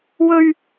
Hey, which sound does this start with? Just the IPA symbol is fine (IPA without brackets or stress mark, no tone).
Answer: w